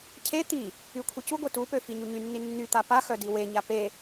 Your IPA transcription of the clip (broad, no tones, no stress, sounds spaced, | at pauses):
cʰ e t̪ i | y kʷʰ i c u ɡʷ i t u p ø f i ɲ u ɲ y nː i nː y t̪ a p a x œ d i w e ɲ a p e